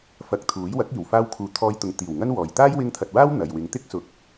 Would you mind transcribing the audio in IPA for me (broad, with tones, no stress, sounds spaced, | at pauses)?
f ɐ˧ k̚ t̪ʰ uː˨˥ j w ɐ˨˥ k̚ iː˨˩ w f aː˧ w kʰ uː˨ t̪ʰ ɔː˧ j t̪ ʊ˨ ŋ t̪ iː˨˩ w ŋ ɐ˥ n w ɔː˨ j t̪ aː˥ j w ɪ˧ ŋ t̪ʰ ɐ˨ t̚ w aː˥ w n̪ ɐ˨ j w ɪ˨˧ ŋ t̪ ɪ˥ k̚ s ʊ˨˥ k̚